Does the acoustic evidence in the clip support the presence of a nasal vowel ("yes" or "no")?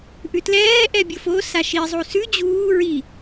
no